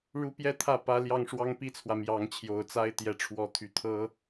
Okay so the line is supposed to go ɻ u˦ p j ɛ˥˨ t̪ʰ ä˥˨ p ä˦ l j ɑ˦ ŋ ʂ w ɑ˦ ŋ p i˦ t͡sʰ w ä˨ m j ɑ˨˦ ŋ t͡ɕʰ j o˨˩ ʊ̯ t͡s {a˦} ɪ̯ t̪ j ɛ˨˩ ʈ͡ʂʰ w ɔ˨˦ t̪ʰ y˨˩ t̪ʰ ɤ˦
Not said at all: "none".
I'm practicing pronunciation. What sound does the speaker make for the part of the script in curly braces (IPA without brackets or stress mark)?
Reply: a˦